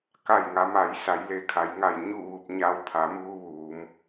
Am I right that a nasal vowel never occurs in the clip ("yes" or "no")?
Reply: yes